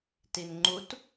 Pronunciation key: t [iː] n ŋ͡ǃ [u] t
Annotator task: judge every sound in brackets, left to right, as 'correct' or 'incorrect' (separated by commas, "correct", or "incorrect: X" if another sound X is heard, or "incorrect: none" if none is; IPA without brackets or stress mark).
incorrect: i, correct